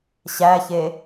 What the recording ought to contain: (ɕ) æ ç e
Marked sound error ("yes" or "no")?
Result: no